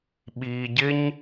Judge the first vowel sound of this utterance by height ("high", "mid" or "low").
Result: high